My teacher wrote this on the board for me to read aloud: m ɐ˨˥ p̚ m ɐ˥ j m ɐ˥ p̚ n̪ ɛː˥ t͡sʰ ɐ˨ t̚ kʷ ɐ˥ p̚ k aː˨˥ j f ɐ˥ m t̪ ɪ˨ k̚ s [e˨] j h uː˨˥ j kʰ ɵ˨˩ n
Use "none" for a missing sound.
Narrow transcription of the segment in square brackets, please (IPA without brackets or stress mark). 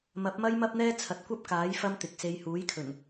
e˧